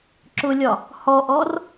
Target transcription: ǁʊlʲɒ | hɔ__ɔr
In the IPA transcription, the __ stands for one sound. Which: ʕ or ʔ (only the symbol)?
ʔ